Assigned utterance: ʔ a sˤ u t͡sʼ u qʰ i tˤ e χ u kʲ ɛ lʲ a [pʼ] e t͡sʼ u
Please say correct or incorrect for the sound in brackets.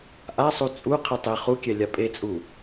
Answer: correct